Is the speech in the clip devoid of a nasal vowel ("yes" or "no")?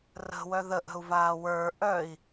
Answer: yes